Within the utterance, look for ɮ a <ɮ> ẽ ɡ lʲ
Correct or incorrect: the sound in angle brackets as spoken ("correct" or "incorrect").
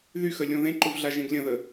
incorrect